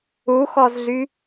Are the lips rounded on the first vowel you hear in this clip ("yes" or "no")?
yes